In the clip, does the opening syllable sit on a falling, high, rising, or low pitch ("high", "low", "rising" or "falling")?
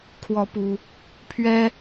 rising